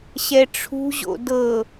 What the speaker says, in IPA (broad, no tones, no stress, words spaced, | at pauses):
ɕɛʈ͡ʂʰṳʑo̰ dɤ